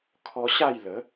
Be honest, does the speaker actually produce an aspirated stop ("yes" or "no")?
yes